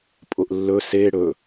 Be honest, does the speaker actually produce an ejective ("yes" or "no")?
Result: yes